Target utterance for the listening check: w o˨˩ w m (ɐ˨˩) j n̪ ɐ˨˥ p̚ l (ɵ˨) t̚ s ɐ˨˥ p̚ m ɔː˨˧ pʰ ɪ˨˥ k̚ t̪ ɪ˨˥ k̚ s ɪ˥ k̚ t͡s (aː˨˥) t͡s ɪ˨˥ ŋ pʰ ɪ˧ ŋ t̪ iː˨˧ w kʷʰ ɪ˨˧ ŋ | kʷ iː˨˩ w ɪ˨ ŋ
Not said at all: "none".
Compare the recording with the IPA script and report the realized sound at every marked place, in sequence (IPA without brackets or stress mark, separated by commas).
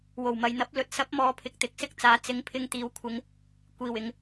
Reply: ɐ˨, ɵ˨, aː˨˥